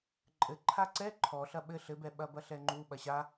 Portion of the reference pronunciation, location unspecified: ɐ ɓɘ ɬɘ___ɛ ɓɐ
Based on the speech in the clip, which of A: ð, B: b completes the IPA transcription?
B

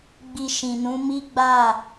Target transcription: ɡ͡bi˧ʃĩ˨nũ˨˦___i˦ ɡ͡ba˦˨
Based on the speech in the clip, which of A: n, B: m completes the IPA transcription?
B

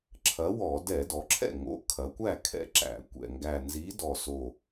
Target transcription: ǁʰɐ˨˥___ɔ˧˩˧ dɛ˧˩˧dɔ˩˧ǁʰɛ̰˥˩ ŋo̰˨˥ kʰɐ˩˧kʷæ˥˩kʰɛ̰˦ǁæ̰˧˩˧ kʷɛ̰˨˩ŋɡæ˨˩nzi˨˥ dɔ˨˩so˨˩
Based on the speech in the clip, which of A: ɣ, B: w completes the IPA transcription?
B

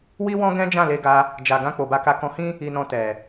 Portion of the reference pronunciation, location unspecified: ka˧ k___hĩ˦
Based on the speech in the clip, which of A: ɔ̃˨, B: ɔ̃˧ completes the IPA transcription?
B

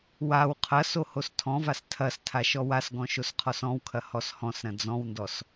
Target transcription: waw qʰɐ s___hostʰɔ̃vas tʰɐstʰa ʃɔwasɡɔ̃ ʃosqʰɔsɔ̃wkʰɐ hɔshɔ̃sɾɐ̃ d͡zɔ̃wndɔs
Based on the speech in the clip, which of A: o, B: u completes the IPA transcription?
A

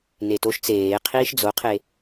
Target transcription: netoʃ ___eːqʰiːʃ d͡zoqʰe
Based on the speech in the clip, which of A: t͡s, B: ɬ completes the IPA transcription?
A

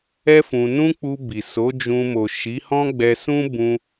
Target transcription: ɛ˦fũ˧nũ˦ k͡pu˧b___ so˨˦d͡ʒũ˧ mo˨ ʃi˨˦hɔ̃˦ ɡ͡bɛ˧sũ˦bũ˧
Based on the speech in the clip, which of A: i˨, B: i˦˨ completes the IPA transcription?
A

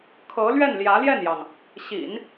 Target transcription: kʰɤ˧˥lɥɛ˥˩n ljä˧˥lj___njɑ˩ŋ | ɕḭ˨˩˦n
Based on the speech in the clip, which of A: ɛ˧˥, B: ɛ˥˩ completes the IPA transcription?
B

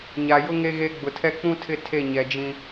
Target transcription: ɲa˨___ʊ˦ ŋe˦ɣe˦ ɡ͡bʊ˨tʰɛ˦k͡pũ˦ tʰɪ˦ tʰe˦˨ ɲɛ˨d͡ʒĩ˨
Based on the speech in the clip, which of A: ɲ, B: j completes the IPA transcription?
B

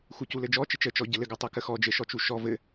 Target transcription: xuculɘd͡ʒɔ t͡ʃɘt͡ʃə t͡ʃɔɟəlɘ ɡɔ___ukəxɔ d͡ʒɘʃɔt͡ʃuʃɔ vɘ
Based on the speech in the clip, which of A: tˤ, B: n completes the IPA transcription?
A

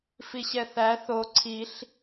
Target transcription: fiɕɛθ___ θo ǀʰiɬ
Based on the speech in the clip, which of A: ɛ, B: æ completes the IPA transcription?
B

